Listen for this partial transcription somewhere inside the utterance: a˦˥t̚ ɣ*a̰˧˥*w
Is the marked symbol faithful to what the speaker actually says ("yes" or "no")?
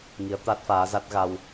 no